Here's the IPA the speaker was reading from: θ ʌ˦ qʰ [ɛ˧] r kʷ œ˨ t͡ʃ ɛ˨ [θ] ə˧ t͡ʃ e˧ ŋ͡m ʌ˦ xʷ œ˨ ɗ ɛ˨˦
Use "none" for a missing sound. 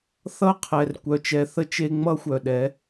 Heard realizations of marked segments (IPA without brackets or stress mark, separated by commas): ɛ˨, θ